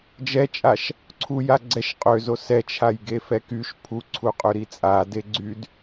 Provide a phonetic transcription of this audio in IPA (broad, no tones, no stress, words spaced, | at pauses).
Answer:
d͡ʒɛt͡ʃʼaʃ | ǀʰuja ɡ͡ǀɛʃ qʼøzo sɛt͡ʃʰajɡefɛ kyʃ pʰuǀʰuqʼøɾi t͡sʼade ɡ͡ǀyd